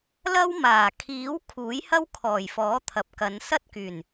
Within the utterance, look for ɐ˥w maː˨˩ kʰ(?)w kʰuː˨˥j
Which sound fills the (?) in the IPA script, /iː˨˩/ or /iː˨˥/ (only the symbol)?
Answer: iː˨˥